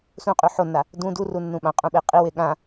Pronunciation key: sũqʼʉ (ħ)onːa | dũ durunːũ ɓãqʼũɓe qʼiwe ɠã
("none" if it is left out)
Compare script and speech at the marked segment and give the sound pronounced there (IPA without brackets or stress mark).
ħ